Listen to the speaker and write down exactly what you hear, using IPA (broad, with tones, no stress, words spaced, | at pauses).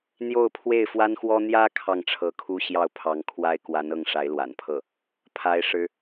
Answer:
n̪jo˥˧ʊ̯pʰwe˥˩ɪ̯fwa˥nxwɔ˥ n̪jä˥ kʰɑ˥˩ŋʈ͡ʂʰɤ˧˥kʰu˥ ɕjɑ˥˩ʊ̯pʰɑ˧˥ŋkʰwa˥ɪ̯ kwa˧˥nɤ˥˩ŋ ʂa˧˥ɪ̯lwa̰˨˩npʰɤ˥˩ | pʰa˥ɪ̯ ʂɻ̩˥